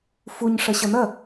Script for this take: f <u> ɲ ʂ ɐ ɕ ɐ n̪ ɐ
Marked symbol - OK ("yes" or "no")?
yes